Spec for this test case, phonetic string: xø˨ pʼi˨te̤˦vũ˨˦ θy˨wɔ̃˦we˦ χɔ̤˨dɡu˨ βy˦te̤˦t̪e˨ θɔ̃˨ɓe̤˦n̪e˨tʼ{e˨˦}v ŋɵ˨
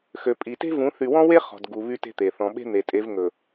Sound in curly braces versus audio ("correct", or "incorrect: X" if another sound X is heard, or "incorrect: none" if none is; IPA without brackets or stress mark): correct